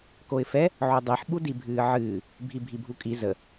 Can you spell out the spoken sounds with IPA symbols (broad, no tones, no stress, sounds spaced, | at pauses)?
k o ɪ̯ f ɛ | ʕ o dˤ i ħ ɓ u d i bʱ ɨː ʕ ɨː | bʱ i bʱ i bʱ u kʼ i z ə